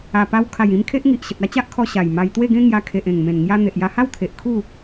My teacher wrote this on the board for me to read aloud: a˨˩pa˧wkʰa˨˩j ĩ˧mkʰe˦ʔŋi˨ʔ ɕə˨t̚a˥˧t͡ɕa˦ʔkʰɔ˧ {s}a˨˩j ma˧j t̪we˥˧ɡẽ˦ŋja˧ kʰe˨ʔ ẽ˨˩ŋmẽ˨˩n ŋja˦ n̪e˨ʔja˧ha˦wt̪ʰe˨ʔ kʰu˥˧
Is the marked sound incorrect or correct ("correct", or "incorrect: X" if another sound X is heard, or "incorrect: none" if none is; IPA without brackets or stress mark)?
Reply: incorrect: ɕ